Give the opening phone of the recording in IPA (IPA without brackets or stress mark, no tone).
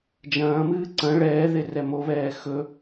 d͡ʒ